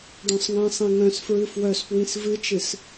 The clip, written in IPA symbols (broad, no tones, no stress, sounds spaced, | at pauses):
ɖ œ̃ sˤ ŋ ɛ̃ sˤ ĩ ŋ œ̃ s f ɹ ɨ f w œ s p w ĩ s v ɨ t͡ʃ ɨ s